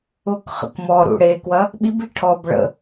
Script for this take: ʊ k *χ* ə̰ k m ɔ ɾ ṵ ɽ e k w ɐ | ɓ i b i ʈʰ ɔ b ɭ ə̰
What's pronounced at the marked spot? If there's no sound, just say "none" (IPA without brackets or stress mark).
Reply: χ